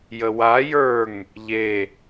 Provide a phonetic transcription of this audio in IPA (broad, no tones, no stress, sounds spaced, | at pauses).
j ə w a j ə˞ ŋ | ʎ e